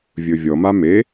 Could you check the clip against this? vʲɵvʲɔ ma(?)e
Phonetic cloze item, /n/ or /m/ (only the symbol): m